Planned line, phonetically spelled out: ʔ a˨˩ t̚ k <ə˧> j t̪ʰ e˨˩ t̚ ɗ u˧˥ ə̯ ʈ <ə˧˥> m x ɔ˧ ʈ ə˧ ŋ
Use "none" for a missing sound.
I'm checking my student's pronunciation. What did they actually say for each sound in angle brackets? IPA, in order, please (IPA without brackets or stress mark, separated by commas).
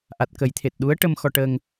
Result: ə˨˩˦, ə˧